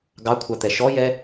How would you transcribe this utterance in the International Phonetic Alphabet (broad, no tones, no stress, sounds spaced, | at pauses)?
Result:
ɡ ɑ kʷʰ ɑ t̪ ɛ ʃ ɔ j ɛ